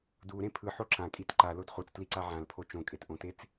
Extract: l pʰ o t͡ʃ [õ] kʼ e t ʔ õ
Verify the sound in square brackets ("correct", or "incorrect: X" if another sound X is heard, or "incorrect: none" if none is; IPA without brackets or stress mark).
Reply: correct